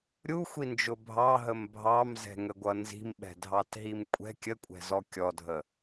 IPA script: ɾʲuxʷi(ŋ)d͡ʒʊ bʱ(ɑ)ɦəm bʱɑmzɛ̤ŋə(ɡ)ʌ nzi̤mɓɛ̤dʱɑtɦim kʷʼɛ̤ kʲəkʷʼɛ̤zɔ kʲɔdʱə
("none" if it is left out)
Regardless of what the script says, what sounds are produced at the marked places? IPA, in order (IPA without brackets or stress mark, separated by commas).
n, ɑ, ɡʷ